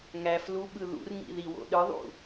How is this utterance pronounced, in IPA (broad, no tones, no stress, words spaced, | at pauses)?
ŋæfluɓɯ ðṵrŋḭ ðiwo̰ɗɯðˤṵ